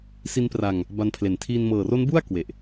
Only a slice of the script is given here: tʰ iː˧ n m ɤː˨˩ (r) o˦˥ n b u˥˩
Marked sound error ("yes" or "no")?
no